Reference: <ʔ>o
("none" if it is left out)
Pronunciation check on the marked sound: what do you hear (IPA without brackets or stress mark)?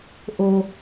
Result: ʔ